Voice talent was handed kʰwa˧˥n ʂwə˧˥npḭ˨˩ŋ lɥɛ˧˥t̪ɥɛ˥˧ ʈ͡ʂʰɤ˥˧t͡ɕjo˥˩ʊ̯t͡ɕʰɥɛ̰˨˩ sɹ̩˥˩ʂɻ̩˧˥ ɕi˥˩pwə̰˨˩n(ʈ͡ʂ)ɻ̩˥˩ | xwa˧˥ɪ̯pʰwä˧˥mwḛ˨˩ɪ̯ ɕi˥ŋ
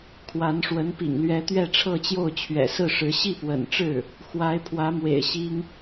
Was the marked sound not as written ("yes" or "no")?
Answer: no